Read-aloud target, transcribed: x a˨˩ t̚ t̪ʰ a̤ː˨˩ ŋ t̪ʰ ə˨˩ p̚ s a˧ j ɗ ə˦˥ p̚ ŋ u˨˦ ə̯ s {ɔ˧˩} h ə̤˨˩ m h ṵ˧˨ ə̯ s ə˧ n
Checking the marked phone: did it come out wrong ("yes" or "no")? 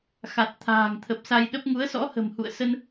yes